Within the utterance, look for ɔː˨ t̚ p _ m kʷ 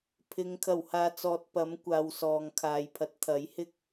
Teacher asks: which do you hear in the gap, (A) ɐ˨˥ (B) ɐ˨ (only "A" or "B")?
A